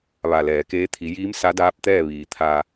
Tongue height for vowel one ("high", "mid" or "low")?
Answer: low